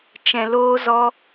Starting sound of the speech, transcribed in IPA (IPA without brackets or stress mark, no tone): t͡ʃ